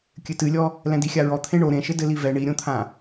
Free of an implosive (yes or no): yes